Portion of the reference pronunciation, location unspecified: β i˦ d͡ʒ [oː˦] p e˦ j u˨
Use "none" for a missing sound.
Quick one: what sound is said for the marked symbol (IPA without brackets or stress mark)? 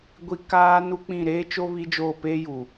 oː˦˨